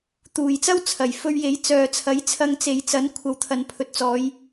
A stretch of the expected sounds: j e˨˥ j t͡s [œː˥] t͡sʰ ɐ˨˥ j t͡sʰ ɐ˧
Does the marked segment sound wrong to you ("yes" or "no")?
yes